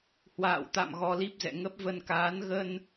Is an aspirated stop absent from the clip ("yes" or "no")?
yes